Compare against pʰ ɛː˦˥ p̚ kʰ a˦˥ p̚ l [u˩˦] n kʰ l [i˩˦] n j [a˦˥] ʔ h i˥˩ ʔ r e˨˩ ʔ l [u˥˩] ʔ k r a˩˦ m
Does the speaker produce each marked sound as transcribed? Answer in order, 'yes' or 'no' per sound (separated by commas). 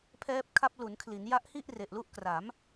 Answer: yes, yes, yes, yes